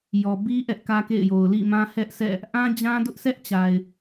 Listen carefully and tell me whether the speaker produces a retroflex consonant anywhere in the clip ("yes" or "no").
no